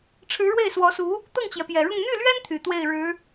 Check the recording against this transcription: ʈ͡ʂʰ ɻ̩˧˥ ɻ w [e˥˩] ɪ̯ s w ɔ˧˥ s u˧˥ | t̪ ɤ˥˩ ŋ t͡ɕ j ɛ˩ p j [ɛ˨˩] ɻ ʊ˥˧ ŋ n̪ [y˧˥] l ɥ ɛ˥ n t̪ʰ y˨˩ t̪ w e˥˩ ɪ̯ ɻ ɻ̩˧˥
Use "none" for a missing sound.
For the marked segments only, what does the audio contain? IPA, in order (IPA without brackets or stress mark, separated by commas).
e˥˩, ɛ˨˩, y˥˩